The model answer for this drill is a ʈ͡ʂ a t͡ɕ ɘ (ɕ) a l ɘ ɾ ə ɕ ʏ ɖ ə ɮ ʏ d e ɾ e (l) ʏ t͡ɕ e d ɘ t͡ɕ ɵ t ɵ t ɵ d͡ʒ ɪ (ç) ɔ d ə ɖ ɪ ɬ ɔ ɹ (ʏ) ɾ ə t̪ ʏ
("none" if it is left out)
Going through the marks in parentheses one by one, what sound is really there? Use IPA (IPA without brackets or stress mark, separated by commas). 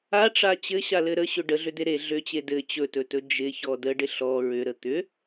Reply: ɕ, ɮ, ç, ʏ